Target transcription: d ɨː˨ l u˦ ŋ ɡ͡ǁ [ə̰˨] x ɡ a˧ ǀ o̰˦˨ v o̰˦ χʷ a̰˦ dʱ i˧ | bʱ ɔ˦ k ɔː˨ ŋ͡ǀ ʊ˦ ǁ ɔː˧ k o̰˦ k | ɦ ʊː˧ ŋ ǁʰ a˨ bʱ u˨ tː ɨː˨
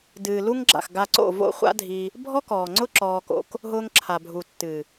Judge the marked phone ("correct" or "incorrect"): incorrect